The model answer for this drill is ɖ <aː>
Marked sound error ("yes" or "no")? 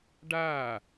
no